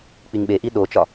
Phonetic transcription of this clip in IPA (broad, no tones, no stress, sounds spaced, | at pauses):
k͡p i ŋ ɓ e ʔ i ɗ o t͡ʃ ɒ